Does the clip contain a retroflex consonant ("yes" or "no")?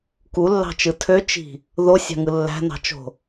no